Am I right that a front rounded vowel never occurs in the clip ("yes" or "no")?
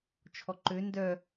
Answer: no